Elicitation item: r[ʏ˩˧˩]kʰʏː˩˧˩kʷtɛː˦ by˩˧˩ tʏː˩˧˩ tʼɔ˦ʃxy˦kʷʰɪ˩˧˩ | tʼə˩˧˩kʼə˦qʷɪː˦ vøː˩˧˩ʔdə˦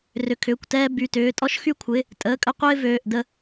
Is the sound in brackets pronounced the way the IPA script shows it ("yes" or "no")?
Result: yes